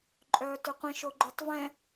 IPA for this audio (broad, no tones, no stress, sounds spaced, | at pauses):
ǃʼ œː t ø qʷ ĩ ʃ o ɡ͡ǃ ø tˤ v ɛ̃